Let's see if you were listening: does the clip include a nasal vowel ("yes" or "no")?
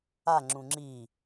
yes